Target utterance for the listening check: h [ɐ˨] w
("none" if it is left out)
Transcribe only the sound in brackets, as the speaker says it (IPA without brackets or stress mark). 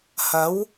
ɐ˨˥